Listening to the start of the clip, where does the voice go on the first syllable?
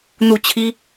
falling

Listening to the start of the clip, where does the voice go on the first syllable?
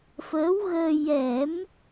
rising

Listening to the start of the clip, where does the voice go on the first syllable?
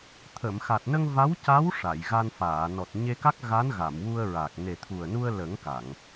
low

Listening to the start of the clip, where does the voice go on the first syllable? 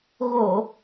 low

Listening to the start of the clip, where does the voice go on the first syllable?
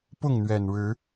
falling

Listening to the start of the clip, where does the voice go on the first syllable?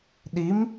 rising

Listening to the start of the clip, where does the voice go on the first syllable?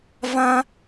high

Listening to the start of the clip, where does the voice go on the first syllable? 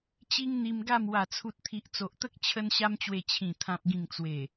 high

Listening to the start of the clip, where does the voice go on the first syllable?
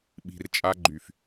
low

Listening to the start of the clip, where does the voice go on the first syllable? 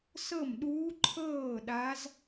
falling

